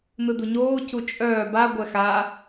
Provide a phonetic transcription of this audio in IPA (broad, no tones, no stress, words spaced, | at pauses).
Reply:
nɯduɲoː cut͡ʃʼœː ba ɡʷɛxa